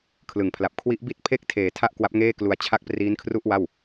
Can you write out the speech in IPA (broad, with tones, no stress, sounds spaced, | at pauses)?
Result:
kʰ l ɯ˨˩ ŋ pʰ l a˨˩ p̚ kʰ w i˦˥ ʔ b i˥˩ t̚ pʰ e˥˩ k̚ tʰ eː˨˩ tʰ a˥˩ ʔ k w a˦˥ p̚ ŋ eː˥˩ k l u˧ a̯ t͡ɕʰ a˥˩ k̚ p r iː˦˥ n kʰ r u˥˩ ʔ w a˥˩ w